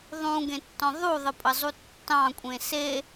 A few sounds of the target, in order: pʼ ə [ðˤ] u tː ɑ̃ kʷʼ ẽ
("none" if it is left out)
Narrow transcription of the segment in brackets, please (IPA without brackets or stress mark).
zˤ